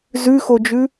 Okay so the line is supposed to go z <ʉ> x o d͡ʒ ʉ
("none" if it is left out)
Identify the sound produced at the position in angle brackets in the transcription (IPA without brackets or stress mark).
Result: ʉ